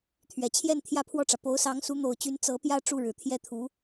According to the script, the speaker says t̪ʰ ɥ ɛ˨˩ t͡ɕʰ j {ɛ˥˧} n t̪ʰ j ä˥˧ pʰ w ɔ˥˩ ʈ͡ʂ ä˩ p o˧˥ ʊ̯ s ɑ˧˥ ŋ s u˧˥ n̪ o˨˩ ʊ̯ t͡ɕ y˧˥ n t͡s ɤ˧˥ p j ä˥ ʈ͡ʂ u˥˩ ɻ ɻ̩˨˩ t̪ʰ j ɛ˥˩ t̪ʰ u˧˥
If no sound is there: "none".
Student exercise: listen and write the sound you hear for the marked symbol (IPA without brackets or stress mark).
ɛ˥˧